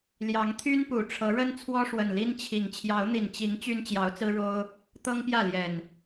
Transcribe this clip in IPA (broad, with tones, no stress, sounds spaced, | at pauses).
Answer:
l j ɑ˨˦ ŋ t̪ʰ y˦ n p u˨˩ ʈ͡ʂʰ ɤ˨˦ ɻ ə˦ n t͡sʰ w ɔ˦ ʂ w ə˨˩ n l i˦ n t͡ɕʰ i˨˩ ŋ t͡ɕʰ j ɑ˨˦ ʊ̯ n̪ i˨˩ n t͡ɕ i˨˦ ŋ t͡ɕ y˦ n t͡ɕ j ɑ˨˦ ʊ̯ t͡s ɹ̩˦ ɻ o˦ ʊ̯ | t̪ ɤ˦ ŋ p j ä˥˨ l j ɛ˨˩ n